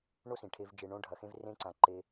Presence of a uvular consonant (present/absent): absent